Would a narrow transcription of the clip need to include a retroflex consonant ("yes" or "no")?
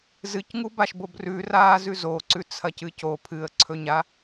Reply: no